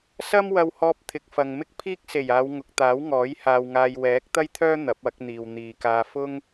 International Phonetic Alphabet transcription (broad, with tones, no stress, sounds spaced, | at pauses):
s ɐ˥ m w ɐ˧ w h ɔː˧ p̚ t̪ʰ ɪ˨ k̚ f ɐ˨ ŋ m ɪ˥ k̚ pʰ iː˥ k̚ s e˨˩ j aː˨˧ w ŋ ʊ˨ k̚ t̪ aː˨˥ w ŋ ɔː˨˥ j h aː˧ w ŋ aː˧ j w ɛː˨˥ k̚ t̪ ɐ˥ j t̪ʰ œː˥ n̪ ɐ˨˥ p̚ ɐ˨˥ k̚ n̪ iː˨ w n̪ iː˨ k aː˧ f ʊ˥ ŋ